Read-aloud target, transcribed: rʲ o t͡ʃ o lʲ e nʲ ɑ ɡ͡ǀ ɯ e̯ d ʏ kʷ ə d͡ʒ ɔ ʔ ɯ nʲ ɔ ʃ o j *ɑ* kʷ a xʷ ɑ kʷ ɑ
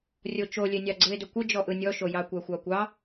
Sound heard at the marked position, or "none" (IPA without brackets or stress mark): ɑ